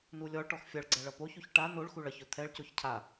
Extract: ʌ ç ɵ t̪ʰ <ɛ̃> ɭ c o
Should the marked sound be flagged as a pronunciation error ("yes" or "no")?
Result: yes